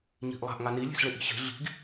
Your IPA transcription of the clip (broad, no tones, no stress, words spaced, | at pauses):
ɲi̤ʔlˠa̤ʔ ŋani lʲe̤sɭeʔi̤ɕe̤ ɮi̤ɡ